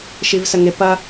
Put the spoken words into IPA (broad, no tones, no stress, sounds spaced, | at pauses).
ʃ i v s ə ŋ ɪ p ɐ